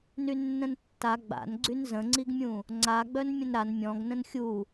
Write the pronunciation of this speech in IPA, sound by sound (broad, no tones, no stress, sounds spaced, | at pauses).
n y nː ə̃ n tː a ɡ͡b a̰ n ɡ͡ǀ y n z ə̃ ŋ͡ǀ i ɡ mʲ ũ | ŋ͡ǀ a ɡ͡b œ n mʲ ə̃ n ɾ a n mʲ ɔ̃ ɡ n ə̃ n xʲ u